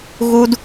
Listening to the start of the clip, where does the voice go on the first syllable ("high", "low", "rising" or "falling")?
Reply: high